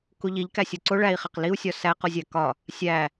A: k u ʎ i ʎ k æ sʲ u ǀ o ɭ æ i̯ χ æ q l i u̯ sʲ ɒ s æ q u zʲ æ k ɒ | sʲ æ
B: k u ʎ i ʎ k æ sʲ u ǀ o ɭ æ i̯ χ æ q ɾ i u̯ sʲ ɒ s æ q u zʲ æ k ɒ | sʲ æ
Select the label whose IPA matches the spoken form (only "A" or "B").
A